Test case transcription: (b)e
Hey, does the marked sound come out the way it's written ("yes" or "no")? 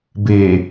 yes